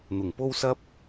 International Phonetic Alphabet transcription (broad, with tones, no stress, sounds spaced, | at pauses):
n̪ ʊ˨˩ ŋ p o˥ w s ɐ˥ p̚